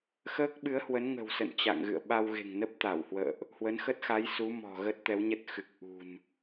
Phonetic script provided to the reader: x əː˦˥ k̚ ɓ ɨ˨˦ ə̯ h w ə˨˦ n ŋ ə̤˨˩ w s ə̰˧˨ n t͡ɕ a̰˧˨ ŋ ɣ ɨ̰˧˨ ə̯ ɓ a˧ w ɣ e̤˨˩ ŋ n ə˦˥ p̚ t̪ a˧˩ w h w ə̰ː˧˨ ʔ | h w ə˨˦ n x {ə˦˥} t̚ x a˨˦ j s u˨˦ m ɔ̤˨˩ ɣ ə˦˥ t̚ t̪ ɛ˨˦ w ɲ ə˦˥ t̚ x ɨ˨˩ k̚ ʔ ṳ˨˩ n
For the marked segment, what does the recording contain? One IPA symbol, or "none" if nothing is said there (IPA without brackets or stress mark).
ə˦˥